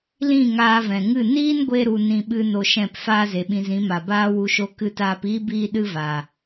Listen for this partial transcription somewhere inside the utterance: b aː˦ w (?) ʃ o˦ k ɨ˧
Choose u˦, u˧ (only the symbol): u˧